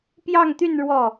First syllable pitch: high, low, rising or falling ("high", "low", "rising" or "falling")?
falling